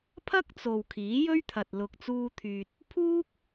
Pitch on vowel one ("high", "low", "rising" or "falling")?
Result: high